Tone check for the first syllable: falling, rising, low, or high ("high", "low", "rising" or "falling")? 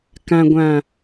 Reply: low